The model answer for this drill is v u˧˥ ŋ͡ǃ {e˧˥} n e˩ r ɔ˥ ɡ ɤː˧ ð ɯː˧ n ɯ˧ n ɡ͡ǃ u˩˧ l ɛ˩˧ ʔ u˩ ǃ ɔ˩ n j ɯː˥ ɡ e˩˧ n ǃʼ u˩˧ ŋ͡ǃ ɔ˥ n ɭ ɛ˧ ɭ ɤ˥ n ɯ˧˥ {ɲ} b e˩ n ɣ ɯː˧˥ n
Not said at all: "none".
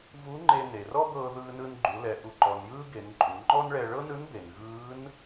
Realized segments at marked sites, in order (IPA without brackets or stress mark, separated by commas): e˧, n